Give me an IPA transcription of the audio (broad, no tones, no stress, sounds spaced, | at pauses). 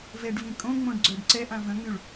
v ɛ ɖ v ĩ kʼ õ ŋ͡m õ ɖ ɡ͡ǀ œ ɖ ǀ ɛ ʔ ã v ə̃ ŋ͡m y ɭ